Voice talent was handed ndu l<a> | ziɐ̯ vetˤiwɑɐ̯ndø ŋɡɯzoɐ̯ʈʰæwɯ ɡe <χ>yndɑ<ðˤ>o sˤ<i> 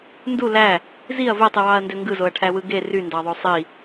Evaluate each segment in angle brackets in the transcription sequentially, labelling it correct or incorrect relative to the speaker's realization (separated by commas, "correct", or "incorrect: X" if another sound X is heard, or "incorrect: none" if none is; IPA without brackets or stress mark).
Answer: incorrect: æ, incorrect: r, correct, correct